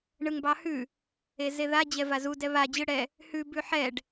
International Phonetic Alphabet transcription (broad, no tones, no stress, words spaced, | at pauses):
ɳɯŋbɑhʉ | ezeða d͡ʑɛvazu dɛβa d͡ʑɯɽɛ | hʉ bʉħɛɖ